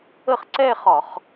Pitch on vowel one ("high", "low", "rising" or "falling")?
falling